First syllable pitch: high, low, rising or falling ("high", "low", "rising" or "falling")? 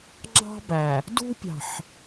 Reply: high